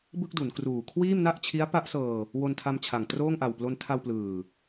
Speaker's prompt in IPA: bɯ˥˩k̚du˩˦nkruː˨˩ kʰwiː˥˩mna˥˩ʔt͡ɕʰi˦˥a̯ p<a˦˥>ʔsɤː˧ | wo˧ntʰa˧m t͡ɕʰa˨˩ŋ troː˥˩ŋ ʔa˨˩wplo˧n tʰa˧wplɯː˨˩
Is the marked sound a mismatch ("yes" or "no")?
no